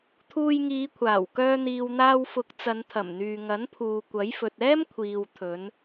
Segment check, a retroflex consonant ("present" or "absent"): absent